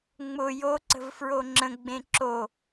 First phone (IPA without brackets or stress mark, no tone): ŋ͡m